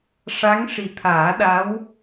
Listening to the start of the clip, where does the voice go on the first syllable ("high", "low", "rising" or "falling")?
rising